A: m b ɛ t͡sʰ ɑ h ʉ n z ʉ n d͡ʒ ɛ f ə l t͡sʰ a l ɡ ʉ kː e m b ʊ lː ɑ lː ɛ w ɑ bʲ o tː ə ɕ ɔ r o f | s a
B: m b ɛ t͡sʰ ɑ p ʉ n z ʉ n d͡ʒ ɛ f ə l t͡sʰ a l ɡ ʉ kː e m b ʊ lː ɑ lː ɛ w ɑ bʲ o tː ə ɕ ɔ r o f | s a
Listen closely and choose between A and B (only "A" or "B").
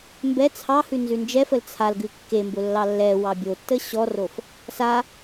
A